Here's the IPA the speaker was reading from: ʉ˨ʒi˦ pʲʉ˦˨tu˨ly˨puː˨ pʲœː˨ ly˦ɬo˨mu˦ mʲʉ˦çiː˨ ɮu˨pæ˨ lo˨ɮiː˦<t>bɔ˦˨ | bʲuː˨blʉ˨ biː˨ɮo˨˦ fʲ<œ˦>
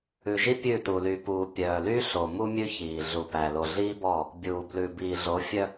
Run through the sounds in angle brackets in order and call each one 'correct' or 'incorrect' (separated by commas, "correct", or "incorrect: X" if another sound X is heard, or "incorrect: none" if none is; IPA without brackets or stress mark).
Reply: incorrect: none, correct